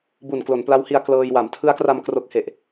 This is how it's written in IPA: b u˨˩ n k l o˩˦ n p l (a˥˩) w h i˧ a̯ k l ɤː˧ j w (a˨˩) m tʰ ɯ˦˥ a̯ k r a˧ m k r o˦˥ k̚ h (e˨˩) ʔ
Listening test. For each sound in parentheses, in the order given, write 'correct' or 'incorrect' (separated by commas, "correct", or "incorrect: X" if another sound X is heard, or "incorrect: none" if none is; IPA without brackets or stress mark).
incorrect: a˦˥, incorrect: a˩˦, correct